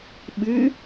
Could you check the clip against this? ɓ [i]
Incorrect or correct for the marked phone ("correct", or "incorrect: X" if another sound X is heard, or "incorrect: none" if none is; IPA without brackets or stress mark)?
incorrect: ɨ